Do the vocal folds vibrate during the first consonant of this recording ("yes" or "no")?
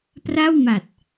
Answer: no